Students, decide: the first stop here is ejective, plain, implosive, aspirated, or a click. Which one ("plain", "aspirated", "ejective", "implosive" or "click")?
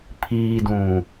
aspirated